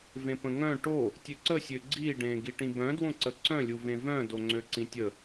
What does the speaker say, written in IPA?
v ẽ p ə̃ ŋ œ̃ ʈ o | tʲ ø ǀ ə sʲ ø ɡ͡ǀ i ɖ ẽː ɡ i ʈ ĩ b œ̃ d w õ ǀ ə ǀ œ̃ lʲ u v ẽ v œ̃ d o ŋ͡ǀ ø ǀ ĩ tʲ ə

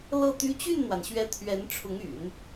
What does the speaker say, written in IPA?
l ɤ˥˩ t̪ y˥ t͡ɕ y˥˩ n n̪ w a˩ n ɕ ɥ ɛ˧˥ t̪ʰ ɥ ɛ˧˥ n ʈ͡ʂʰ ʊ˧˥ ŋ y̰˨˩˦ n

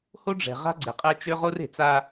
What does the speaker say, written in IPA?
h o˦ ɖ͡ʐ ɛ̤˨ ʁ a̤˦ ɡ͡ǀ e˨ qʼ ɛ˦ t͡ʃ ø˦ ʁ o˦ r e̤˨ t͡s a˦

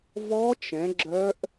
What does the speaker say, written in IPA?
v ɔ˦˥ t͡ʃ ɛ̃˨˦ ɡ͡ǁ œ˦˥ ʔ

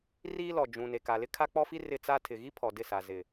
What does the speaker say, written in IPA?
r iː˦ l ɔ˨ d͡ʒ ũ˨ n e˨ k a˨ l ɪ˦ kʰ a˦ k͡p ɔ˦ f i˦ r ɪ˦ t͡s a˦ tʰ ɪ˨ ɣ i˦ pʰ ɔ˨ d ɪ˦˨ s a˨ z ɪ˨

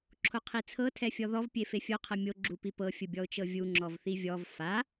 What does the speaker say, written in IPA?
ǁʰ o qʰ i t͡sʰ ɤ tʰ ɛ fʲ ɔ ð ɔ v pʲ e f e fʲ o qʰ ɤ mʲ o ɡ͡ǁ u p i p ɤ fʲ ɯ bʲ ɔ ʊ̯ t͡ʃ ɤ vʲ u ŋ͡ǁ ɔ v θ i vʲ ɔ v f a

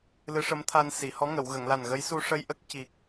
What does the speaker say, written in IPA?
l ɨ˧˥ ʂ ə˧˥ m t̪ʰ a˧ n s i˨˩˨ h ɔ˧˥ ŋ ə˨˩˨ w ɣ ə˨˩˨ ŋ l a˨˩ n ɣ ə˧˥ j s u˧ ʂ ə˧ j ʔ ə˦˥ k̚ c i˨˩ k̚

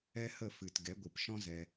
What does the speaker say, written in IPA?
ɛ˦ h ə˦˨ f ɨ˨ t ɡ ɛ˨˦ ɡʷ ɨ˨ p ʃ ɔ̃˦ z ɛ˧

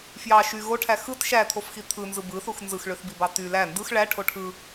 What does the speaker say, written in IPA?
f j ɑ ʃ y ɣ o ʈʰ æ x ɯ t ʃ æ t̪ʰ o f x i t̪ʰ ɯ n z ɯ b ɯ θ u x n z ɯ x ɭ ø θ b i b ɑ t y l æ n d ɯ x ɭ æ ʈʰ o ʈʰ ɯ

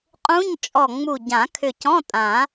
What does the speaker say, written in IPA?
qʼ ũ˧˥˧ ɲ t͡ʃʼ ɔ˧˩ ŋ͡m u˧˩ ɟ ã˨˩˦ kʰ ʏ˧˩ c ɔ̃˧˥˧ tʼ ã˨˩˦

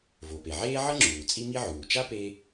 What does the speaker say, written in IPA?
v o˩ p e˩ ʕ eː˥ ʕ ʌ˥ ŋ͡ǁ uː˩ t͡sʼ i˥ m i˥ ʕ uː˩ t͡ʃ a˥ p e˥

